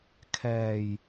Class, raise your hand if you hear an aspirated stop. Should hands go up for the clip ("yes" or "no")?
yes